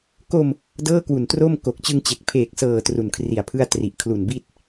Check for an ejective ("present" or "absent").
absent